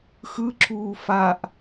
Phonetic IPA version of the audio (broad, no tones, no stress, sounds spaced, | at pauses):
x ɯ ǁ uː f a ʔ